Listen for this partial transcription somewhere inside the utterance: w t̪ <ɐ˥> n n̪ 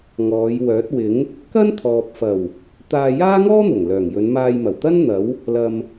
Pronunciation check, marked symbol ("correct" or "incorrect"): correct